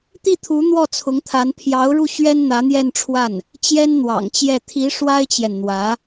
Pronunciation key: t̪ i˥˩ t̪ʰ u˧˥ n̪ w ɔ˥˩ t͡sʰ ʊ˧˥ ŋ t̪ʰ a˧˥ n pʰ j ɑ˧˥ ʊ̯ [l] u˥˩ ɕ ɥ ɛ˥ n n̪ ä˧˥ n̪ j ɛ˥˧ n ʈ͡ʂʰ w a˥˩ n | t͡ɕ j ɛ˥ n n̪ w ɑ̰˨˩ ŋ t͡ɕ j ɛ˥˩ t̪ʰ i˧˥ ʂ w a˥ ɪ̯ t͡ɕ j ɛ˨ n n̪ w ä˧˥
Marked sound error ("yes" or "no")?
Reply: yes